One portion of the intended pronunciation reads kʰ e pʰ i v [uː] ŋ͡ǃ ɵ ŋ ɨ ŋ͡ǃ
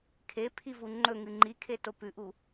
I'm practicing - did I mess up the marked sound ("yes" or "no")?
yes